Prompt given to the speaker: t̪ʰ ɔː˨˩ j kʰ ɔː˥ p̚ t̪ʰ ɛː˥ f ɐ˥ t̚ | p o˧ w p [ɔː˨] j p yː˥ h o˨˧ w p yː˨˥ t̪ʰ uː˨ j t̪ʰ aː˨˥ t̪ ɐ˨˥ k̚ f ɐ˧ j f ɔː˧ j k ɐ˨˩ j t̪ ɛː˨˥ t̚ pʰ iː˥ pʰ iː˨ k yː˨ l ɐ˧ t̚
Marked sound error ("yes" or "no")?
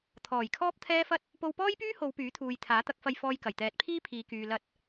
yes